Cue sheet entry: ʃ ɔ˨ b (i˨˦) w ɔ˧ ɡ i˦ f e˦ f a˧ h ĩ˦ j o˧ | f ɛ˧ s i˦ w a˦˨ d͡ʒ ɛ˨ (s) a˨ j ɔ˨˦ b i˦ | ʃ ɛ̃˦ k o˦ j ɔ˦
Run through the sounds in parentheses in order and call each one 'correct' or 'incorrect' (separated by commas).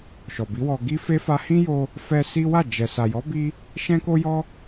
correct, correct